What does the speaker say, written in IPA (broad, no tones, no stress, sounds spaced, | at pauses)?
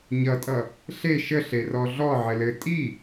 ɲ ʌ tʼ ʌ | ɬ e ʃ ə ɬ e r ɔ ɮ ɔ ʕ ɘ l ɘ tʼ i